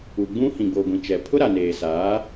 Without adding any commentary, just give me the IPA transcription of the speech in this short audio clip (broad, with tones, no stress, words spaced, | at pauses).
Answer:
u˨ɡ͡bũ˦ hĩ˨ɡ͡bo˨ɡʷĩ˨t͡ʃɛ˨ pʰʊ˦ɾa˨ neː˨saː˨˦